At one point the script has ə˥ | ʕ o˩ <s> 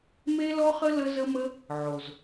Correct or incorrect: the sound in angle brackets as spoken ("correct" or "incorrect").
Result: incorrect